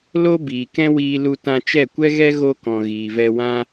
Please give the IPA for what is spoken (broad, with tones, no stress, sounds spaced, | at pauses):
l o˦ b iː˨ k ɛ̃˦ w iː˧ l u˧ t ã˧ t͡ʃ ɛ˦˨ kʷ ɛ˦ ɣ ɛ˦ ɣ o˧ k ɔ̃˨ ɣ iː˨ v ɛ˧ w ã˦